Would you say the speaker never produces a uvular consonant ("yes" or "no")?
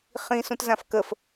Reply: no